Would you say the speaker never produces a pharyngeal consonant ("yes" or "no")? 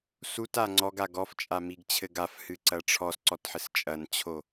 no